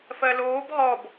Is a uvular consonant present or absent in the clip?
present